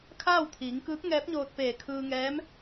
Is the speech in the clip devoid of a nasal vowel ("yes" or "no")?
yes